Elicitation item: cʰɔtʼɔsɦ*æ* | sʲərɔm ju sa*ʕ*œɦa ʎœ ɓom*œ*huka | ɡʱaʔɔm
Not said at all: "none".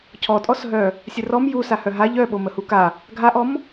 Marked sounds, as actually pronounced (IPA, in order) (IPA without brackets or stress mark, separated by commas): œ, h, ə